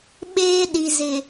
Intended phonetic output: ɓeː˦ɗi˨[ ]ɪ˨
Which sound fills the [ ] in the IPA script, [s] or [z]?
z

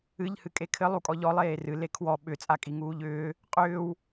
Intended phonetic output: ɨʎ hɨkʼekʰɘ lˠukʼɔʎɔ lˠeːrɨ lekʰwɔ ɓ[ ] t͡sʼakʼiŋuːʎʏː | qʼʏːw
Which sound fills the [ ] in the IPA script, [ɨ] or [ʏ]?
ʏ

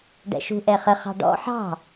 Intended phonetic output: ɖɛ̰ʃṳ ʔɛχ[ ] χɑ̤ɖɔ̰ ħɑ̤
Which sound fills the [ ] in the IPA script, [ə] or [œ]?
ə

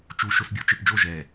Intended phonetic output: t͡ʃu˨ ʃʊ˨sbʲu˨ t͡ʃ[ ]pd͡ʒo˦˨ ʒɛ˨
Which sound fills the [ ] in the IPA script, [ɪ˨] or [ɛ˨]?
ɪ˨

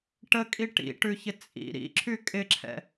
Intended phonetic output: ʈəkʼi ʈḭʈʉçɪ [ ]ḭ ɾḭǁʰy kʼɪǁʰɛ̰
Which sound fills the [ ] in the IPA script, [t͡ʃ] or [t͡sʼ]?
t͡sʼ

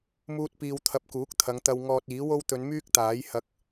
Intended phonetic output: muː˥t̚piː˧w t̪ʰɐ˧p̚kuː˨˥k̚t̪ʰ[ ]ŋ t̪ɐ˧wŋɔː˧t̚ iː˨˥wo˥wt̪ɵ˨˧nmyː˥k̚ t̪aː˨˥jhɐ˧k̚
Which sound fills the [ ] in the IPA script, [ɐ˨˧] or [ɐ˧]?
ɐ˨˧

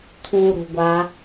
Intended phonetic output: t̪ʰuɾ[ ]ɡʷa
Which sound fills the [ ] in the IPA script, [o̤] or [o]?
o̤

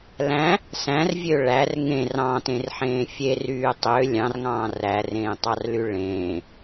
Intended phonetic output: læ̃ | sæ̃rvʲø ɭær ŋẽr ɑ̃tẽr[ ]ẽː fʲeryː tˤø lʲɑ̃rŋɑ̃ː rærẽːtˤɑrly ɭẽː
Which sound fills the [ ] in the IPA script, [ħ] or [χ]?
ħ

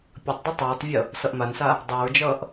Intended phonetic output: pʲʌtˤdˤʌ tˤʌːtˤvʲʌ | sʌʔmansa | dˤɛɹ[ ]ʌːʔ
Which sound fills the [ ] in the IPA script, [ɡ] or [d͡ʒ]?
d͡ʒ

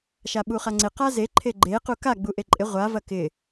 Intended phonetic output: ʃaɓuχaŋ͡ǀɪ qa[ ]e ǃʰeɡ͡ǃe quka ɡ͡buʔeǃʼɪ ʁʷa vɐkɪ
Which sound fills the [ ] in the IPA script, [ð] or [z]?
z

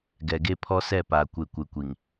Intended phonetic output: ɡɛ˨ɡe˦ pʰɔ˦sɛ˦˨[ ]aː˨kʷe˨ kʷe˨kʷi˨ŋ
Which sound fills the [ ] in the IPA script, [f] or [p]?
p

